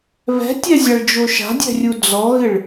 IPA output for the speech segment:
β ɛ̤ tʲ ɛ zʲ a ɭ d͡ʒ o ʃ a̤ dʲ ɛ̤ rʲ u d͡z ɔ ɣ ɪ ɭ

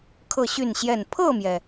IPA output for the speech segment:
kʰ ɤ˥˨ ɕ y˥˨ n ɕ j ɛ˥˨ n pʰ ɤ˥˨ m j ɛ˩

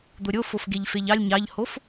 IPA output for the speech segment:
d̪ o ɾʲ o f o f ɡ e ʎ f e ʎ ɑ lʲ ɲ ɑ ʎ h o f

